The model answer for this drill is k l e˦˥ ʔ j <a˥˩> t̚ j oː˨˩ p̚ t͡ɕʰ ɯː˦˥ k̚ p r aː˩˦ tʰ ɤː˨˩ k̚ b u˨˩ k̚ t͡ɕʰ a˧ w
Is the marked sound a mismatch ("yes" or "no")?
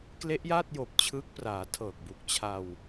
yes